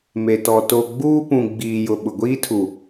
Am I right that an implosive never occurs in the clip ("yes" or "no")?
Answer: no